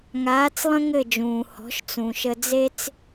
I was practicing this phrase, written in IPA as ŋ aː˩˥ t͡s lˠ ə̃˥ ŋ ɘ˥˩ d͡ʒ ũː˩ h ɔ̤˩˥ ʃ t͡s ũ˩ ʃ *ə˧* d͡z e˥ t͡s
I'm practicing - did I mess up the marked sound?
no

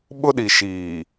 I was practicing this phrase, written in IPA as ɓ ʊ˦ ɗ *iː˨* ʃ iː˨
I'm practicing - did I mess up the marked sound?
yes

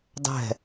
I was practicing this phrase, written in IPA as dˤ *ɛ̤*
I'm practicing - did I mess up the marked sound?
no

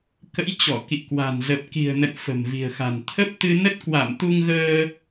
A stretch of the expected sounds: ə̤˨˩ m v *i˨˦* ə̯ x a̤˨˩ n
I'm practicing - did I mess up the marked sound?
yes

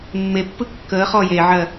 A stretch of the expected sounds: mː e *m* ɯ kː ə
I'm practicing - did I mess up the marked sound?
yes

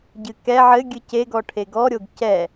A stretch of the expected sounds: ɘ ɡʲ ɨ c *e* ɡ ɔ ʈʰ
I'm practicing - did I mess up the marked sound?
no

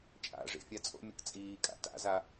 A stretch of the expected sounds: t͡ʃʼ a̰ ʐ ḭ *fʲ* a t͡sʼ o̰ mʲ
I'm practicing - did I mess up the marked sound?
no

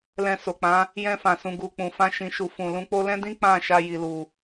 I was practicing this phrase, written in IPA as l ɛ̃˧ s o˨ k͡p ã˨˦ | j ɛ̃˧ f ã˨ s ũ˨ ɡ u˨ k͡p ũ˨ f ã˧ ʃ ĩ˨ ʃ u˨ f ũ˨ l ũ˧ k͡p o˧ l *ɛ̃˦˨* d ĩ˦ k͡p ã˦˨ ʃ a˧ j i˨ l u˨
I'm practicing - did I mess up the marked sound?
yes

